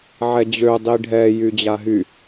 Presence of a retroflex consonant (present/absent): present